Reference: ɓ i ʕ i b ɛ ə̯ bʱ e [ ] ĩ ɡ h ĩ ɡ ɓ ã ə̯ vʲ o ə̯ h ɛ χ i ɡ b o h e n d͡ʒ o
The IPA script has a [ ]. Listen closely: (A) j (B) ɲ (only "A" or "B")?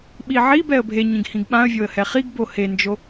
B